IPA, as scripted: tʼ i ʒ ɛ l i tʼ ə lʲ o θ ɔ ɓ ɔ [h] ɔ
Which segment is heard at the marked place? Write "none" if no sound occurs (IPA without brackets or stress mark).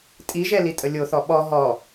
ɦ